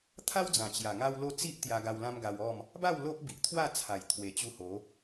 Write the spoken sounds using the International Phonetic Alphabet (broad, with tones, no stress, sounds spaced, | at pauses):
t̪ʰ a˦ w d͡z ã˨˩ t͡ɕ j a˨˩ ŋ a˦ w l o˦ t͡s i˦ ʔ t̪ j a˧ ɡ a˧ w l ã˦ m ɡ a˧ w ɔ˥˧ m | b a˥˧ w l o˦ ʔ b i˨ ʔ t̪ʰ w a˥˧ t͡sʰ a˨˩ j t̪ʰ w e˨˩ t͡ɕ u˧ h o˨˦